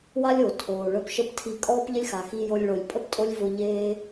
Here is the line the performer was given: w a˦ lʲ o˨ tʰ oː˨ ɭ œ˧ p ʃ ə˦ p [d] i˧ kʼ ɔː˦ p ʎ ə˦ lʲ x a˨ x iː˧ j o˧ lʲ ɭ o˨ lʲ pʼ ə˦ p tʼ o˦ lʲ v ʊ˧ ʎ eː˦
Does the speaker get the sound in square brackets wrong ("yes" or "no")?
yes